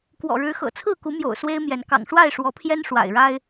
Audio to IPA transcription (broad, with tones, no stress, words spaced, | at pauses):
kwɔ̰˨˩ɻɻ̩˨˦xɤ̰˨˩ t͡sʰɹ̩˥˨ku˨˦mjo̰˨˩ʊ̯ swe˦ɪ̯mjɛ˨˦n kɑ̰˨˩ŋʂwa˥˨ɪ̯ ʂwɔ˨˦pʰjɛ˦n ʂwa̰˨˩ɪ̯ɻa˦ɪ̯